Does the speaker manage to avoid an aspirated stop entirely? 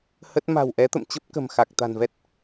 yes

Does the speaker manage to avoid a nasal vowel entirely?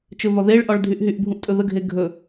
no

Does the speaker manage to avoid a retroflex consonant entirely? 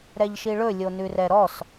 no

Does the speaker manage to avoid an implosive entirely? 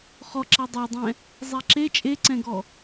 yes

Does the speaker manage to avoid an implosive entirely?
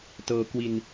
yes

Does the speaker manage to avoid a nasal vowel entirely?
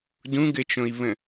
no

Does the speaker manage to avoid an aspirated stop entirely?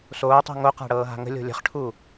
no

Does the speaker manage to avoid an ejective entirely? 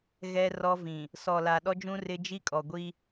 no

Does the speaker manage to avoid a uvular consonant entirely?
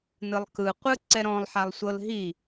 no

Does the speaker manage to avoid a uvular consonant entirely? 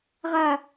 no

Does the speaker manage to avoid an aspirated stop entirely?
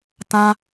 yes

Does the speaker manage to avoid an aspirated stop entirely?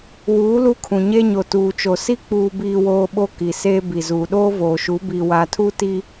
no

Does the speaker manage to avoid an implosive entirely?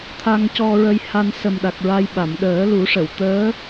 no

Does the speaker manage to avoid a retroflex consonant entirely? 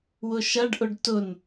no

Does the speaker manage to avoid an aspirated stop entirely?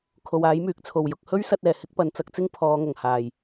no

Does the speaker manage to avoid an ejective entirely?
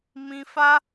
yes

